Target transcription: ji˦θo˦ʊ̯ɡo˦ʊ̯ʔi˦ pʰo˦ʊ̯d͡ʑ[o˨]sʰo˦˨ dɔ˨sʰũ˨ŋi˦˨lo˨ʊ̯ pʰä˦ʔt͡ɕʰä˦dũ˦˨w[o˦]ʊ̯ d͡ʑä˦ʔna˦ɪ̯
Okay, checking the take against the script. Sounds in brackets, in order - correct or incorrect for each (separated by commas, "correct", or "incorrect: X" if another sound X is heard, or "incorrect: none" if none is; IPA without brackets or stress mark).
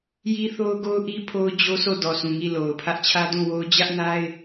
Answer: incorrect: o˦, correct